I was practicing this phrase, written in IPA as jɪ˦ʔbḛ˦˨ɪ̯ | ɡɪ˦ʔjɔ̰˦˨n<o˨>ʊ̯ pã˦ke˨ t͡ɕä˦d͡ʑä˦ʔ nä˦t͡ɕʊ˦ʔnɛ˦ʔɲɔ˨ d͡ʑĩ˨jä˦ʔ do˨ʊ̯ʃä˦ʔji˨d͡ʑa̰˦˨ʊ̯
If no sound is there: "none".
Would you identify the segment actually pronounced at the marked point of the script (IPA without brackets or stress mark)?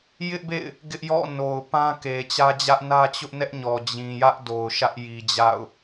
o˨